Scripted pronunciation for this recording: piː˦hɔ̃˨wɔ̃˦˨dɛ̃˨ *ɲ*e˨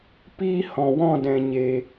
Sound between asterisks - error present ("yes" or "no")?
no